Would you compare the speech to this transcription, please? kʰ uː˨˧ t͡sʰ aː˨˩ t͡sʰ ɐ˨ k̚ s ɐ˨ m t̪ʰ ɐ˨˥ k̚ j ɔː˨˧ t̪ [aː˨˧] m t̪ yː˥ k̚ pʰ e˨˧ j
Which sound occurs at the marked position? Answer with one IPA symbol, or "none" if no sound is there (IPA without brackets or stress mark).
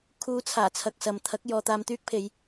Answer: aː˧